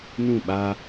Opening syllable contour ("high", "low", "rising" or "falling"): falling